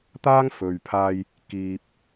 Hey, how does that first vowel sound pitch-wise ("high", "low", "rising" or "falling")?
high